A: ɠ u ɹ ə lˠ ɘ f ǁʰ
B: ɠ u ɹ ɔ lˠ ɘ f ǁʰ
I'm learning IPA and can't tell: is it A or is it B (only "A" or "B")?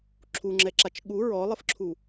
B